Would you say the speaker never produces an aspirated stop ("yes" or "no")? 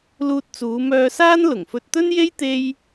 yes